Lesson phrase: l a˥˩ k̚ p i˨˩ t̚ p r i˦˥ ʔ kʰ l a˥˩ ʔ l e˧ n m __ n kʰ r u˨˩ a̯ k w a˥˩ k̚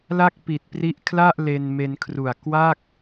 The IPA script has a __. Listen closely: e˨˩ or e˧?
e˧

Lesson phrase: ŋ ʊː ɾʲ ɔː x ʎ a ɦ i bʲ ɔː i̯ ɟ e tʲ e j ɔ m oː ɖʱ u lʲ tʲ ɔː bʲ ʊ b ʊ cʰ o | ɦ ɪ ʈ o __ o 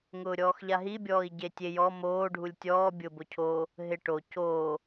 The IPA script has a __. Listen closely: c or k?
c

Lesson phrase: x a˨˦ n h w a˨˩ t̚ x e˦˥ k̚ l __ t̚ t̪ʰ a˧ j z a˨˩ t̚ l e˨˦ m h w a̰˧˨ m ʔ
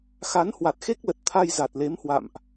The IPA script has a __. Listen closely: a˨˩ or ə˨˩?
ə˨˩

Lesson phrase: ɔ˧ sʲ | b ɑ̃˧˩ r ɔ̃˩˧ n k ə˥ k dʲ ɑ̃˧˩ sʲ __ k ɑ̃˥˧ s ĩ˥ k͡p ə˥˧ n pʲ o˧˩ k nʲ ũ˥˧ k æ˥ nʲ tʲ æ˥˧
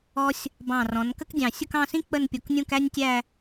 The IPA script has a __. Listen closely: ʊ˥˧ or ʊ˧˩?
ʊ˥˧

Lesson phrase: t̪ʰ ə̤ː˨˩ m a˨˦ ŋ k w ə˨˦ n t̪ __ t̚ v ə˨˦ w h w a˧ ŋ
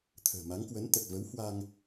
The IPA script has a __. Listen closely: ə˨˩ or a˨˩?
ə˨˩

